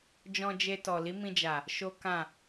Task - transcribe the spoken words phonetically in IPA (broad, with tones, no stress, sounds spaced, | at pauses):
d͡ʒ ɔ̃˧ d͡ʒ e˧ t ɔ˨ l i˨˦ m ĩ˧ d͡ʒ a˨ | ʃ o˦ k ã˦˨